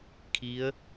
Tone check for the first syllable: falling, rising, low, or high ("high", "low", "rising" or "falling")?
rising